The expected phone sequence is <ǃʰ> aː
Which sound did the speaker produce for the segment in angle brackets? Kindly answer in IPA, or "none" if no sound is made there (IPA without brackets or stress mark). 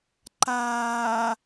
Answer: ǃ